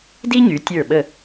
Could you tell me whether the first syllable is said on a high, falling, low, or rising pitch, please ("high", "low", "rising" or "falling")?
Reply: high